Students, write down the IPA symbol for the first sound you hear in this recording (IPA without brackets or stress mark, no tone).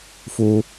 f